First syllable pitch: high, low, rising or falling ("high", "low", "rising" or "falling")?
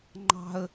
high